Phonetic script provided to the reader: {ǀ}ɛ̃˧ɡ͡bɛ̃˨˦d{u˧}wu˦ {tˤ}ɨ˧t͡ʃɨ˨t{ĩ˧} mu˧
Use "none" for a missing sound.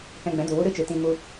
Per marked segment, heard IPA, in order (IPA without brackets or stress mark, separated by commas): k, u˨, ɾ, ĩ˧